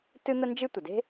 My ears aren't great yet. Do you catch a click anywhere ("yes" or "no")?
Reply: no